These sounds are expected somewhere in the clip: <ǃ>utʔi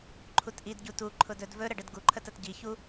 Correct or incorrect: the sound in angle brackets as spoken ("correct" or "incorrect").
incorrect